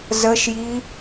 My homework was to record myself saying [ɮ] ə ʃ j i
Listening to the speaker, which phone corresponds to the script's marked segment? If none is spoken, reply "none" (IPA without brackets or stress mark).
z